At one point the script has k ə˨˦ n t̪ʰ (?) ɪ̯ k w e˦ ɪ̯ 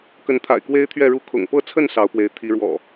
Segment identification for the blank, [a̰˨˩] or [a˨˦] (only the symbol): a̰˨˩